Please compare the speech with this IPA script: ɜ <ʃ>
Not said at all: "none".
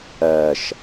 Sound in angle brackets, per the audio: ʃ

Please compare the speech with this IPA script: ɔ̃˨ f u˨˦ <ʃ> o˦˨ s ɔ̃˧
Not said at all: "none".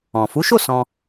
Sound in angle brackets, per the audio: ʃ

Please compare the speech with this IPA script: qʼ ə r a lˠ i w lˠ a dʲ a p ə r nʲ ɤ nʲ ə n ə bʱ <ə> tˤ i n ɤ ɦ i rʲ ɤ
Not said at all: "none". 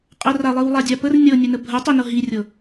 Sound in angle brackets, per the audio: ə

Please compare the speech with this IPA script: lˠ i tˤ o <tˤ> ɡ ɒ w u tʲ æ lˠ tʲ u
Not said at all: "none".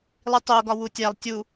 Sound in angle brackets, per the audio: none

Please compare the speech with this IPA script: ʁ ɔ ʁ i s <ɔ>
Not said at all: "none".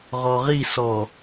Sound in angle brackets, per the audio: ɔ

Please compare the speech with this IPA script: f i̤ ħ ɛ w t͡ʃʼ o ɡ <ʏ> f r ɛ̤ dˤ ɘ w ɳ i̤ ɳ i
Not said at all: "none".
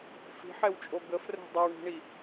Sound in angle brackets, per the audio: ə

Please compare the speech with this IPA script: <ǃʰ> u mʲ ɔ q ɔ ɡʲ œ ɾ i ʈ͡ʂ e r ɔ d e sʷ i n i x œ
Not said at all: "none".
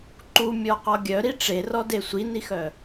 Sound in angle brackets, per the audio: ǃ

